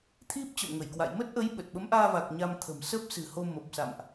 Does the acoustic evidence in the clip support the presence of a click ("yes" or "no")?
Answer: no